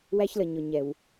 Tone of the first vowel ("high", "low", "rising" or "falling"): high